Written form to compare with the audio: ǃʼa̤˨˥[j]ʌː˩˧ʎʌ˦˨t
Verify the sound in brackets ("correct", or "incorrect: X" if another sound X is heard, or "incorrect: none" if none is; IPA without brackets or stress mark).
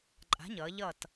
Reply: incorrect: ɲ